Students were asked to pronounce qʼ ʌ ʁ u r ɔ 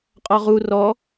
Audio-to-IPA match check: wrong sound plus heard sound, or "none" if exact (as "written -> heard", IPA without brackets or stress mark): ʌ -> ɔ